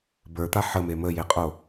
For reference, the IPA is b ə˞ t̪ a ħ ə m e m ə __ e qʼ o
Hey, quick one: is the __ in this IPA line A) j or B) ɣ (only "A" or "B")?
A